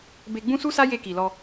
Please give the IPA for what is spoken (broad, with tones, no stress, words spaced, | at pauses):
be˧ɡ͡bũ˦su˦sa˦ je˧ki˨ lɔ˧